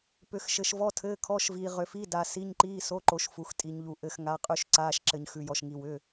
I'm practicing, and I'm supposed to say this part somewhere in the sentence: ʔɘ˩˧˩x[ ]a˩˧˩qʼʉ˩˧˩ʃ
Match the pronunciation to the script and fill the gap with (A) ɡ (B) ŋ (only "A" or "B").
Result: B